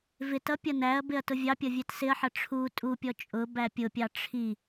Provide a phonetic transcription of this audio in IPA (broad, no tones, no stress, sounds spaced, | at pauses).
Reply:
v ɪ t ʌ pʲ ʌ n æ ɐ̯ b ɪ ɐ̯ t ʊ vʲ ɑ pʲ ʌ vʲ ɛ t s ɪ ɐ̯ ħ ʌ ʈ͡ʂʰ u tʼ u pʲ ɔ t͡ʃʼ ʊ b æ pʲ ʊ pʲ ɑ ʈ͡ʂʰ i